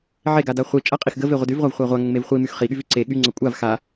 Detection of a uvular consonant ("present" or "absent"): present